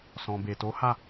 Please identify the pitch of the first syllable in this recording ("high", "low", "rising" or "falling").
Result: low